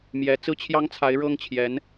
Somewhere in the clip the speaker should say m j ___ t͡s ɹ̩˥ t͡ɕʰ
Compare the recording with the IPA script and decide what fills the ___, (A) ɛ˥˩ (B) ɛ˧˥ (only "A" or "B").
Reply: B